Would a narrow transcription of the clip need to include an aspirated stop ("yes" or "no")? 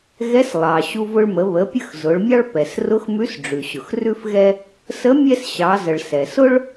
no